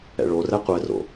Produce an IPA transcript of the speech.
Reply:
ɛ̰ɭorɛ qʷɛro̰

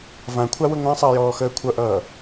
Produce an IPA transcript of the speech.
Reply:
vãkʷʰawə ŋʷãsˤəːjɔː xəːkʷʰʌʔʌː

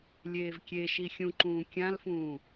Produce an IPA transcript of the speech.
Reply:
lʲeːvkʲeʃi xʲũǃũː kʲãlfũː

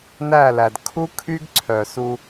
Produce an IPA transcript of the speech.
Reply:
næ˦˨læ˨d kʰu˦kʰy˦ɡ ǀʰœ˨su˧

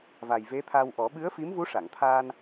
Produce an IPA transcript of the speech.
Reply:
va˨˩jve˧˥t̪ʰa˧wʔɔ˨˩˦ ɓɨ˧˥ə̯fi˧˥mvu˧˥ ʂa˨˩˨ŋt̪ʰaː˧n

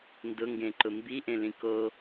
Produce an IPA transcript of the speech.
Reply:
ndʊŋɡẽǃʊ mbiʔẽlĩ ko

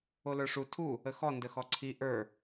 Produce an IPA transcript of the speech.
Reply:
olə˞ʂu tʰu | əxɔ ndəxɔǀʰi ʔə˞

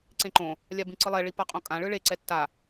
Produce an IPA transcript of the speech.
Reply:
ǀẽǃõ | lʲabĩǀɯlˠɛ ɭipaqʼõkʼã ɭɯɭe ǀɛtːa

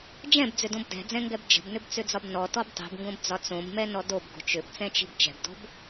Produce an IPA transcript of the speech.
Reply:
d͡ʒɛ̃bd͡zʏdõb dɛ̤d͡zɛ̃ŋɡɛb d͡ʒə̤bnʏbt͡sʏd͡zɒb nɔtɔb tˤi̤bŋɡõbd͡zɒ t͡sõbmɛnɔ dobɡo̤ t͡ʃʏbt͡sɛ̃t͡ʃi̤b t͡ʃɛ̤bdo̤b

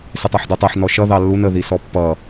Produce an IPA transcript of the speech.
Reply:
sɪtˤɑħdutˤɜħ nɔʃʌ ðɑlːun ə ðisɔpːʌ

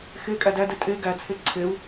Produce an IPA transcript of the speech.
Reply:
xe kʼædædɛ tʼe ɡæt͡sʰe ǀʰeu̯

